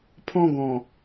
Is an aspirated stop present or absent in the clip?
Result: present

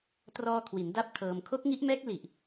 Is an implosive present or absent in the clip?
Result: absent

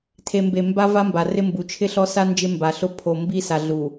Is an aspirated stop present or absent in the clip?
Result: present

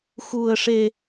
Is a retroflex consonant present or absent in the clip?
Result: present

